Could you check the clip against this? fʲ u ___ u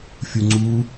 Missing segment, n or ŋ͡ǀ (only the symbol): ŋ͡ǀ